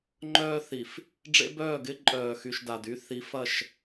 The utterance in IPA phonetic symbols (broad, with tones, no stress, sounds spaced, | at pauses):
ŋ͡ǃ œː˦ θ i˨ f | ɖ͡ʐ ḛ˦ b œː˦˨ ɡ ɪ˦ ǃʼ œː˨ x y˨ ʃ d a˨ d y˦ θ i˨˦ f ɐ˦˨ ʃ